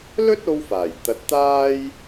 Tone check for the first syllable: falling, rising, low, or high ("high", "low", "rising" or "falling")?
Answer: high